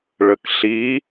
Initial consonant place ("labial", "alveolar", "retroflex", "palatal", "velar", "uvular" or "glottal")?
retroflex